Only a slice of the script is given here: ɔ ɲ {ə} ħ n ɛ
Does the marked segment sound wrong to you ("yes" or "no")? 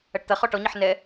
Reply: no